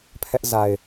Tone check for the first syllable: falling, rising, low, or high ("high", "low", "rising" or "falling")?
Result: high